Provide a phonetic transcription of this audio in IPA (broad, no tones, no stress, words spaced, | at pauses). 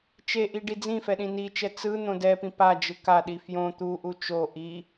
t͡ʃeʔi ɖid͡zĩfɛ ɗĩnit͡ʃɛ t͡sɯn̪õ dɛpĩ pad͡ʒɯ kaɗi fjõ t̪uʔu t͡ʃo ʔi